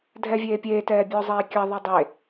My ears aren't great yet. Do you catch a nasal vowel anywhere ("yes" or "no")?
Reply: no